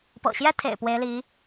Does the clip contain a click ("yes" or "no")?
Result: no